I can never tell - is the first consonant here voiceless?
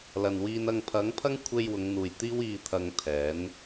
no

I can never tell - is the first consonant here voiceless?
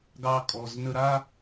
no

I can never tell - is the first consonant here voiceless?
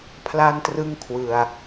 yes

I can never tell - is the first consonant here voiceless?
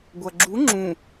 no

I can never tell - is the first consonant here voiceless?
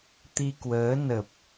yes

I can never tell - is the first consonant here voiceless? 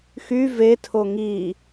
yes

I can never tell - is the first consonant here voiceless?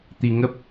yes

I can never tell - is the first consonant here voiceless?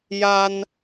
no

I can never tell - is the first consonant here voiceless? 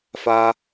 yes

